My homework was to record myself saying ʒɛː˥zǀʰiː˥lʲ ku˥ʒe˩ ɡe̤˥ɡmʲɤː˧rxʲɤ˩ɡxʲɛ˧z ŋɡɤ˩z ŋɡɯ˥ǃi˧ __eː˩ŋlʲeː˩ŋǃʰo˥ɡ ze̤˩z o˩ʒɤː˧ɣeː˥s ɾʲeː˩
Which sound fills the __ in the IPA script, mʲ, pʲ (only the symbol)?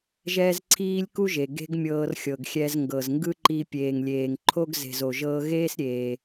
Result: pʲ